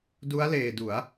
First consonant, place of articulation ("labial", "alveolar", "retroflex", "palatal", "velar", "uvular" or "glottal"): alveolar